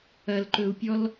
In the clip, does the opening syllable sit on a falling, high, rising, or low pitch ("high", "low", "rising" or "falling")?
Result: low